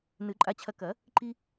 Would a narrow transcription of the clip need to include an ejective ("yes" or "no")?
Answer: yes